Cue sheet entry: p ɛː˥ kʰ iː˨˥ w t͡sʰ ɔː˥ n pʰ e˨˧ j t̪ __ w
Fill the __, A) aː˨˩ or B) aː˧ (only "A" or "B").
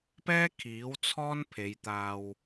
B